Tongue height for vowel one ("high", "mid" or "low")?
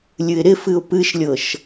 high